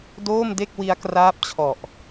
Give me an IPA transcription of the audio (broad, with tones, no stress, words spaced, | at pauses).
doː˥˩mde˥˩k̚ wi˦˥a̯kraː˦˥p̚t͡ɕʰɔ˨˩ʔ